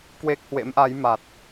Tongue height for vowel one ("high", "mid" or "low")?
mid